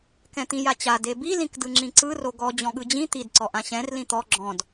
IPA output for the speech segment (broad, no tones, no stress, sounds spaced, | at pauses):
k ɛ̃ t̪ ĩ j a t͡ɕ a d e b i l ĩ k d ɯ ŋ͡ǁ ĩ ǀ ɯ r o ɡ ɔ d͡ʑ ɔ̃ ɠ ɯ d͡ʑ ĩ t̪ i d ǀ ɔ ʔ ã ɕ ɛ̃ r l ĩ t̪ ɔ ɡ͡ǁ ɔ̃ d